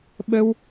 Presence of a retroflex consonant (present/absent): absent